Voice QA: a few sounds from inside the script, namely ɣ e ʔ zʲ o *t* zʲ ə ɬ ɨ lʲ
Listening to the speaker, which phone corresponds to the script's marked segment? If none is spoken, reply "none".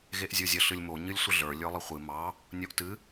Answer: none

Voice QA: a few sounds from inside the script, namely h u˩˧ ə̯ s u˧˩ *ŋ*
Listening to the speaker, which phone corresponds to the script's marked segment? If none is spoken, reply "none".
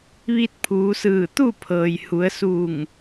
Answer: ŋ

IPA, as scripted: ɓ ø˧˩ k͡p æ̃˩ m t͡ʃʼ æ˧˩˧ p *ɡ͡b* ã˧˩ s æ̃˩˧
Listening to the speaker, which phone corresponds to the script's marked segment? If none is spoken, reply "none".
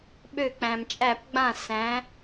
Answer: ɡ͡b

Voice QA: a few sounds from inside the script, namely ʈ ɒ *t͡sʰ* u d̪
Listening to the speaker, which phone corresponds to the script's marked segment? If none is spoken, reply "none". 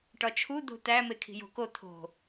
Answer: t͡ʃʰ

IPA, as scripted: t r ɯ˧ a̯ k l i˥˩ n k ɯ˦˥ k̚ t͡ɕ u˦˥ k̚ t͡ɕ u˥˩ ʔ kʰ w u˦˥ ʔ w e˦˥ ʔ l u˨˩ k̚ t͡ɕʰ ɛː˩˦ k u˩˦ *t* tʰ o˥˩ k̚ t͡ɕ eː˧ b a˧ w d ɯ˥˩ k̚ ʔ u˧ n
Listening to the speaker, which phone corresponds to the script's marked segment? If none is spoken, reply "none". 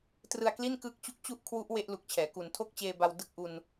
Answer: n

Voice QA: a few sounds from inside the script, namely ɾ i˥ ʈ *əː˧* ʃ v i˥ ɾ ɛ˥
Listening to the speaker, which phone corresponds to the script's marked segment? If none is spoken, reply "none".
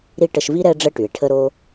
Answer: ə˧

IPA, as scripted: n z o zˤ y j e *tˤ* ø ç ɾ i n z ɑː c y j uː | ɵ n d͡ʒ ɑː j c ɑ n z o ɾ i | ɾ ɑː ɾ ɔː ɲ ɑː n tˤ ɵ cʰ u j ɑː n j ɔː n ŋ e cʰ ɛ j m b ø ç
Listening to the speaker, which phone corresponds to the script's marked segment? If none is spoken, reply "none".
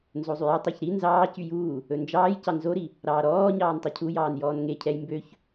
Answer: tˤ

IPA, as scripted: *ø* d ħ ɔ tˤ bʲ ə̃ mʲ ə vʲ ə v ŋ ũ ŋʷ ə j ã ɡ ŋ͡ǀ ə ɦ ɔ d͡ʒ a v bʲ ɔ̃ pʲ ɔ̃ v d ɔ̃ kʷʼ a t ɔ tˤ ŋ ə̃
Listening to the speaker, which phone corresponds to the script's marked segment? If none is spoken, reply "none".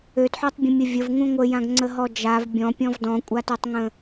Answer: ø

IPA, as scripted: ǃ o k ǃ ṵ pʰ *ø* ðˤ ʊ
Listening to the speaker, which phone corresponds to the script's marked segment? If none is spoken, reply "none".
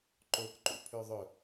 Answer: ø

